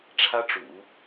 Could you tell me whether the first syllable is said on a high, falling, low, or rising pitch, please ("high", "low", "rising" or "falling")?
high